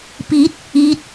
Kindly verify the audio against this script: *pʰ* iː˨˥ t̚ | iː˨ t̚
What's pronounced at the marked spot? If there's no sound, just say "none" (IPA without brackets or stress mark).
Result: p